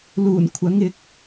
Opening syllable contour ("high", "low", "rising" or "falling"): low